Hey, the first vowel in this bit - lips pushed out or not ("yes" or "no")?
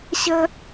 no